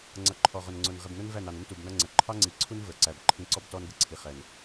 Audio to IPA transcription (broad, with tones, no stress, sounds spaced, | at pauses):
ŋ͡ǀ ʌ˨ ǃʰ ɔ˨ ʁ ʊ˨ n ŋ͡ǀ ʊ˨ n ʁ ɪ˨ b n ʊ˦ n v æ˦˨ n ɑ˨ n ʊ˦ n t u˨ b n ʌ˦ ŋ͡ǀ ə˨ ǃʰ ɑ˦ ŋ͡ǀ i˨ ǀʰ u˦ n v ə˞˨ ǀ æ˨ b ǃʰ ĩ˦ ǀ ɔ˦ b t ɔ˦ n ɡ ə˦ ǀʰ i˨ χ ɛ˨ n